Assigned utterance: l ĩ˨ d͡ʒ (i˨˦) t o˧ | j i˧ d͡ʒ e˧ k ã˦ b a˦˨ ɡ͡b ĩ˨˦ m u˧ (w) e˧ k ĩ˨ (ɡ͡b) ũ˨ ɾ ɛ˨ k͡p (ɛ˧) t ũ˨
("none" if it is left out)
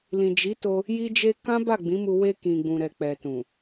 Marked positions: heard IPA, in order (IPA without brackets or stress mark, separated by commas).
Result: i˨˦, w, ɡ͡b, ɛ˨